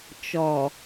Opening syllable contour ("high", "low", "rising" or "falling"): low